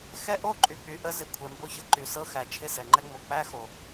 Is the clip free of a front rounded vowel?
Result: no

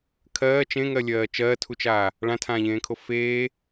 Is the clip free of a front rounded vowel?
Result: yes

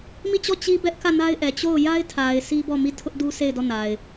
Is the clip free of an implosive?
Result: yes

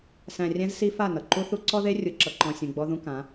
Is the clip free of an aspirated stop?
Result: yes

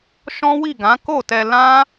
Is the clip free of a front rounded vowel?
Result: yes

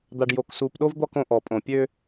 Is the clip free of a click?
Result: yes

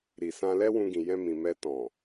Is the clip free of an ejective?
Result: yes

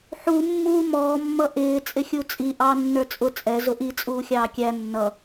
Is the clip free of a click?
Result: yes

